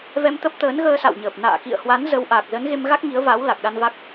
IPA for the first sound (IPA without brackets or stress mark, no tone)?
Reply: v